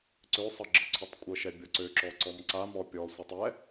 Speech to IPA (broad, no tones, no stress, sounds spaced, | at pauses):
ǀ ø sˤ ɤ ɡ͡ǁ ɤ ǀʰ u tˤ kʷʼ ɤ ʃ ɛ bʲ ɔ ǀ ø ǁ ɔ ǀ ɔ m ǀ a m ɔ pʲ ɔ sʷ ɤ tˤ ɛ